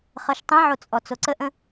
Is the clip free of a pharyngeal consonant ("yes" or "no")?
no